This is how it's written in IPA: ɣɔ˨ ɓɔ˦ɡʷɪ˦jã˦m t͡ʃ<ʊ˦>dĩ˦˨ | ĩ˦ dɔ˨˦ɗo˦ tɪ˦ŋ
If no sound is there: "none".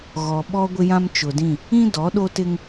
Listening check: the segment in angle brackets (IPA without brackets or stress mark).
ʊ˨